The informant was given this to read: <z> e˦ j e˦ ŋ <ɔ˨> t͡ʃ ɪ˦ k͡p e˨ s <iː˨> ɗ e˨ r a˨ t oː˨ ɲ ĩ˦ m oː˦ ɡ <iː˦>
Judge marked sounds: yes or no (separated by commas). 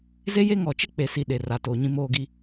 yes, yes, no, no